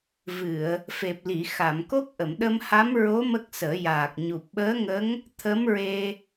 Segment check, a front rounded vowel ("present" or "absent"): absent